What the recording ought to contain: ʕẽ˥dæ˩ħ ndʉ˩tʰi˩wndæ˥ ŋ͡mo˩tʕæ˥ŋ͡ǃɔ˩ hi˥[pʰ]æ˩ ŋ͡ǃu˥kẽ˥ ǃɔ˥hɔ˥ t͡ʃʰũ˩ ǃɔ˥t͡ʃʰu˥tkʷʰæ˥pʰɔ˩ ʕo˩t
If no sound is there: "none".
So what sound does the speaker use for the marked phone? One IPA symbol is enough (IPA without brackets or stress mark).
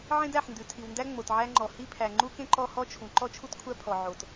pʰ